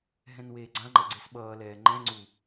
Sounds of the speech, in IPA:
ɦɛ̃nweːɡ͡ǀãŋ͡ǃʌ ɡ͡ǀesɓʌːlɛː ŋ͡ǃɛ̃ ŋ͡ǀu

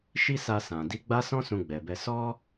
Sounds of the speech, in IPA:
ʃi˦sa˧sã˨ di˨˦ɡ͡ba˦sɔ̃˦ sũ˧ɡ͡bɛ˨bɛ˧ sɔ˦

